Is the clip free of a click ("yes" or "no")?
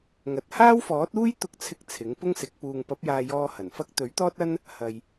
yes